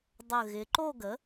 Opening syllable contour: low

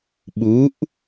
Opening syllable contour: rising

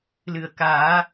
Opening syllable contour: low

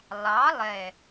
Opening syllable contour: rising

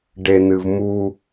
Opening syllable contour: low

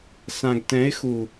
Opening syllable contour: low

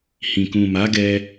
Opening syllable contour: low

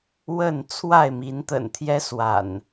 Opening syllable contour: falling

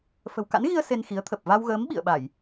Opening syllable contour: low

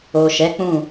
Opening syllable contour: low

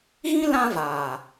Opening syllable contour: high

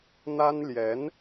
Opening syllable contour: high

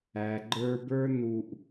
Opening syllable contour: low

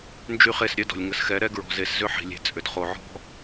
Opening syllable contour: high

